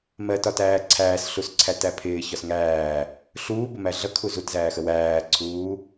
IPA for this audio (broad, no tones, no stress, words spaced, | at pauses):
mɜtɒtæː ǀʰæːsɬusǀʰætæ pʰɪːçɒs ŋæː | ɬuːbəmæ ɮʌkʰu zutzæːxə wæːǀʰuː